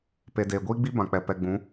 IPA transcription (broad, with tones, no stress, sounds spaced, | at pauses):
p e˨ d eː˨ ɡʷ iː˦ ɡ͡b i˦ b ã˨ k͡p ɛ˨ p ɛ˨ ɡ͡b ũ˨˦